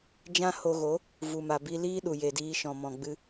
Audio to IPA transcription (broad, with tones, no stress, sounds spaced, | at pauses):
d͡ʒ ã˦ h o˧ ɣ o˨˦ | v u˨ m a˨ b i˧ l iː˦ ɗ u˨ j e˨ d iː˧ ʃ ɔ̃˨ m ɔ̃˨ ɡ͡b ɨ˦